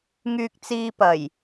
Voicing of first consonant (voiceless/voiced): voiced